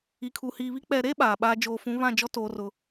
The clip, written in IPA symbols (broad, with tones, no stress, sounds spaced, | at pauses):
i˨ kʰ u˨ h iː˨ β i˦ k͡p ɛ˨ ɾ e˦ ɓ aː˨ ɓ aː˦ d͡ʒ oː˨ f ũ˨˦ β ã˦˨ d͡ʒ ɔ˦ t oː˦ r ʊ˦